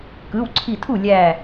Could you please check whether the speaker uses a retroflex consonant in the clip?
no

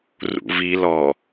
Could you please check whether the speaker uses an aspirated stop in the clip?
no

